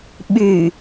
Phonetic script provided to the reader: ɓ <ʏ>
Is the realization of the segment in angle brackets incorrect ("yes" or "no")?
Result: yes